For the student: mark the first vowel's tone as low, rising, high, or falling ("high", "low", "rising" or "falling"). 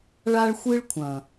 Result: high